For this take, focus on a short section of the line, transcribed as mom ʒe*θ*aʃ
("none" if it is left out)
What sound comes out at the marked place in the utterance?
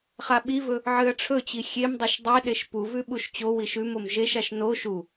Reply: ʃ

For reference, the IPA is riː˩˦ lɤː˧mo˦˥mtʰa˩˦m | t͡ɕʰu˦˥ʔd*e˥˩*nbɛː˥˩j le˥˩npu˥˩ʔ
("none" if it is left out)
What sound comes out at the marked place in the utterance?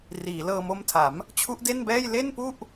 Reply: e˥˩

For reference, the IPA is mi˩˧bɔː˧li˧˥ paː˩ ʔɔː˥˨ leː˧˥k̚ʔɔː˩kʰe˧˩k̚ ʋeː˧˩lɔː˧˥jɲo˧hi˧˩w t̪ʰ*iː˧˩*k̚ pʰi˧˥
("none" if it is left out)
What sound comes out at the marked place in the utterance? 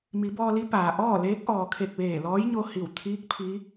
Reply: iː˧˥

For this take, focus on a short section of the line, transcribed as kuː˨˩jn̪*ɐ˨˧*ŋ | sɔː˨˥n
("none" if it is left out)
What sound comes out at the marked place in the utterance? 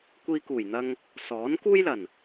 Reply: ɐ˧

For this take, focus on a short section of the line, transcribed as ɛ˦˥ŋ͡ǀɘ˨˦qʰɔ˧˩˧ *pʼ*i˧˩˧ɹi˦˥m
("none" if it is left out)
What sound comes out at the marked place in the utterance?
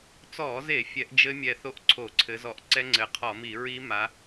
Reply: m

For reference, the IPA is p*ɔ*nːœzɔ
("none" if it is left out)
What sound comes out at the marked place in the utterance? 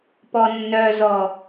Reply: ɔ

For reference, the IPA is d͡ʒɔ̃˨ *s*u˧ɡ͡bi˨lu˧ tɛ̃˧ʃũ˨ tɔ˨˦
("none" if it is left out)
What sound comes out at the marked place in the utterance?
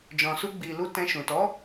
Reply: s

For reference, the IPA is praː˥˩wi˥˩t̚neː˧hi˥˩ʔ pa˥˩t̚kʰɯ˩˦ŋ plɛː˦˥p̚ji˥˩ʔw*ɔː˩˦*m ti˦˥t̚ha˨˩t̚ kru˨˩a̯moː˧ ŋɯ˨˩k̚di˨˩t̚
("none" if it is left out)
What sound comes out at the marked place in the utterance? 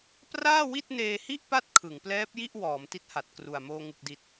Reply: ɔː˩˦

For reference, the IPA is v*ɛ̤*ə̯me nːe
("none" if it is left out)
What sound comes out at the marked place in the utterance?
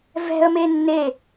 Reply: ɛ̤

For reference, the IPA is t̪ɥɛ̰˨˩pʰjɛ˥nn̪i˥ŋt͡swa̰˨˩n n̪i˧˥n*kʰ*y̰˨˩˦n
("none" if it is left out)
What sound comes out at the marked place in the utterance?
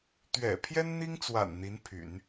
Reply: pʰ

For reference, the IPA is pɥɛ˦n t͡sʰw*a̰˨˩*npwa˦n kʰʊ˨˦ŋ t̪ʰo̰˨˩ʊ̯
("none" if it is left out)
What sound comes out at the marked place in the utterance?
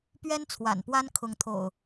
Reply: a̰˨˩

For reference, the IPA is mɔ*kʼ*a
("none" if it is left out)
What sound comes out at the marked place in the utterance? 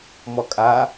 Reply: kʼ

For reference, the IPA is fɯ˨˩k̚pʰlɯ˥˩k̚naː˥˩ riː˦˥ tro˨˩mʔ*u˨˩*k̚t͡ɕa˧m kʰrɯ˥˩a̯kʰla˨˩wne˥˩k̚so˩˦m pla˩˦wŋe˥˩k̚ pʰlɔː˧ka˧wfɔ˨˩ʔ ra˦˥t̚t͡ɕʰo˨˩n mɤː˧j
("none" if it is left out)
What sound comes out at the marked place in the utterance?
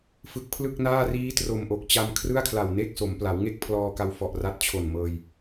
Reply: o˨˩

